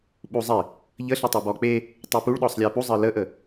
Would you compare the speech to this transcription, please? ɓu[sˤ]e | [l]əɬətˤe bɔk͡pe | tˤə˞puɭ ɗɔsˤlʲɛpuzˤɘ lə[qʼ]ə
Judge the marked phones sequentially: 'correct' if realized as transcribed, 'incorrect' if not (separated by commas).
incorrect, incorrect, incorrect